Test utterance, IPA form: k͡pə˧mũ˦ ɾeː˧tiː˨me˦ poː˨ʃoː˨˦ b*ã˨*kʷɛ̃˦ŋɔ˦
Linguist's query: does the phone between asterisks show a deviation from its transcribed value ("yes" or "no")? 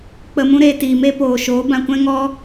yes